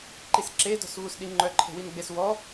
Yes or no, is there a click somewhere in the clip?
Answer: yes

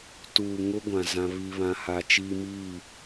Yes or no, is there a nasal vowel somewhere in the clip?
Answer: yes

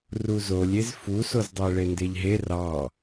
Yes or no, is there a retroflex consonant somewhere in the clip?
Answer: yes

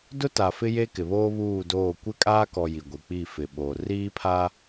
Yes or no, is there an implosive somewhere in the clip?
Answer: yes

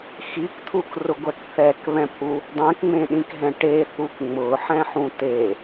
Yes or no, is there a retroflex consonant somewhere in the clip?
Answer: yes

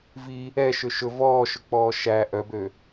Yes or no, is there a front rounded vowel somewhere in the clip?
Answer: yes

